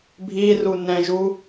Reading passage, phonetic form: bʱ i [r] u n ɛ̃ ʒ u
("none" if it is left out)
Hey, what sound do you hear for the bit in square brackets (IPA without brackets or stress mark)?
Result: r